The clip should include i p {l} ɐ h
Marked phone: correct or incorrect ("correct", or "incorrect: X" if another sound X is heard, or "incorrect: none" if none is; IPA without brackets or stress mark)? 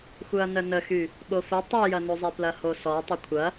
correct